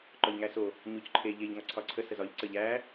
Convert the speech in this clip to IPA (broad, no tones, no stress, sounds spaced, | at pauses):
ǃ ɒ ʎ ŋ æ s o | ɲ o c ǃʰ e ʎ e ʎ ŋ ɒ ǀʰ ɒ ǀʰ ə s ə z ɒ ʎ ǀ ə ʎ æ